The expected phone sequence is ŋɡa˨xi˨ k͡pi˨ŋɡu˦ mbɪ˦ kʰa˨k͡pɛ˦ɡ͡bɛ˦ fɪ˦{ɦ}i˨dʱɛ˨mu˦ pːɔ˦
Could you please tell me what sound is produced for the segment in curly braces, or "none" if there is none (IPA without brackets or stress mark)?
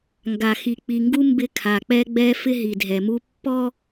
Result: ɦ